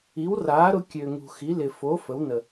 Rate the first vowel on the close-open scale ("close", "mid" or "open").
close